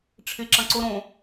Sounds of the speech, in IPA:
ʈ͡ʂʰ ɪ ǁ ɐ̃ ǀ ʊ ɾ õ

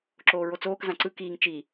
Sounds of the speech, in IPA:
ǁ oː ɹ o t͡s oː k z ã ǀ ɯ k iː ŋ t͡ʃ i

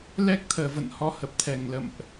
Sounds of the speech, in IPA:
l ɛ˦˥ k̚ t̪ʰ əː˨˩ v ə̰˧˨ n h ɔ˧ h ə˨˩ p̚ t̪ʰ ɛ˧˩ ŋ l ə̰˧˨ m ʔ

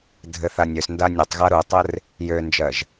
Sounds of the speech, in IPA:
dʱ ɘ θ a nʲ ø s n d a nʲ ɛ tˤ ɣ a ɾ u tˤ ɘ r | j ø n d͡ʒ ɜ ʒ

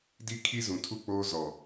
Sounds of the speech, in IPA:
d i˦ kʰ i˦ z ũ˨ tʰ u˦˨ k͡p oː˦ z ɔ˨

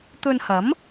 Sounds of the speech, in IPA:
t̪ ɵ˧ n h ɐ˨˥ m

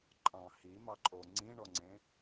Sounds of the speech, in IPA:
ǃʼ ɑ̃ h i m ɑ ǃʼ o ŋ͡ǀ ĩ ɳ ɔ ŋ͡ǀ ẽ

